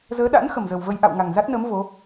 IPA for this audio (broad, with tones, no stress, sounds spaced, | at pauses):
z əː˨˦ ɗ a̰˧˥ n x ə˨˩ m z ə˨˩ w v ə˧ j ʔ a̰˧˨ w ŋ a˨˩ ŋ z a˦˥ t̚ n əː˨˦ m v o˨˦